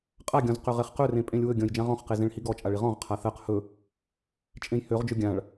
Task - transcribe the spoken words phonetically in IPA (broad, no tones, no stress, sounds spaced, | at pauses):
qʼ a ɡʲ ɔ̃ z q ø ʁ e χ q ɵ r ẽ pʼ ẽ lʲ w ɵ ɡʲ ɔ̃ j d͡ʒ ã ʁ ɔ̃ χ q e z ẽ ɭ h i ɡ ɔ t͡ʃʼ a ɭ i ʁ ɔ̃ ʁ qʰ a θ ɜ q h ɵ | t͡ʃʼ ẽ j h ø ʁ d͡ʒ ɵ ɡʲ ã ɭ